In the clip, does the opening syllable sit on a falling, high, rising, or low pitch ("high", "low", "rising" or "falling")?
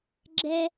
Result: high